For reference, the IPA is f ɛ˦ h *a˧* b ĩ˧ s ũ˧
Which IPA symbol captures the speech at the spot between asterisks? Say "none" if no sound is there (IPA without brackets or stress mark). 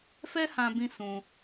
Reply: ã˧